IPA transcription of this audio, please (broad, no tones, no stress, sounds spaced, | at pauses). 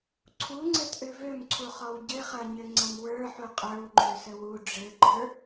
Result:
ǀʰ u ŋ͡ǀ ɘ t ʔ ø v ø m ǀʰ u χ ɔ w ɟ ɘ χ ɐ ɲ ɘ ŋ͡ǀ ɐ m w ə˞ ħ u qʼ ə˞ w ŋ͡ǃ ø s ə w u ɖ͡ʐ ɘ ɡ͡ǃ ə˞